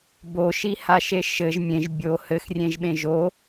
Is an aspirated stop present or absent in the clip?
absent